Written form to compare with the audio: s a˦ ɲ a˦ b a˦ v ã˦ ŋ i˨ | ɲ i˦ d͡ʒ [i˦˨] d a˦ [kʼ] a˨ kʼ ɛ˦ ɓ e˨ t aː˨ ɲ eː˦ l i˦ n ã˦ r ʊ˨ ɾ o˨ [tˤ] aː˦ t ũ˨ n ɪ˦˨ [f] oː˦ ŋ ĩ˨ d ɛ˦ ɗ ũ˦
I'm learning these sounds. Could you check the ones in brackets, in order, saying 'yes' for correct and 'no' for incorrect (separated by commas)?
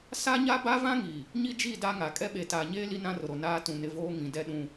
yes, no, no, no